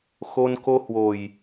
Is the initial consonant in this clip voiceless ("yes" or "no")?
yes